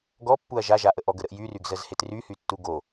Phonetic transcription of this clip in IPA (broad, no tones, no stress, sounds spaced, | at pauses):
ɡ ɔ pː u ɐ̯ ʒ a ʒ a ʔ ə ʔ ɔ ɡ ə ɾ ə ʔ j y r y ɡ z ə z h e t r y h y tː u ɡ o